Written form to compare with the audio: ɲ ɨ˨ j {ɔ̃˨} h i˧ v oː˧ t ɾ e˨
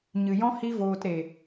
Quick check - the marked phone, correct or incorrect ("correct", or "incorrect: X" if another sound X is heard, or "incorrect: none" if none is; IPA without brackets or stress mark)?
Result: incorrect: ɔ̃˦